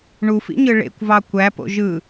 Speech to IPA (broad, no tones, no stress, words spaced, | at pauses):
ɳufḭɲɯ ɭḛkʷvɑ kʷæpo̰ ʒɯ